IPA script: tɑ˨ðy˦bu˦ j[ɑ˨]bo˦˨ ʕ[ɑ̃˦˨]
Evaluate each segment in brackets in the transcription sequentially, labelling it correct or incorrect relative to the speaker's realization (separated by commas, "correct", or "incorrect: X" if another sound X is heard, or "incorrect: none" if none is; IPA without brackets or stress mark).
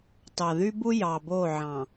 correct, incorrect: ɑ̃˨